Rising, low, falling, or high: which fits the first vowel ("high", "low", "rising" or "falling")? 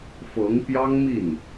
rising